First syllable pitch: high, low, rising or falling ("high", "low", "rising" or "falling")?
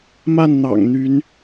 falling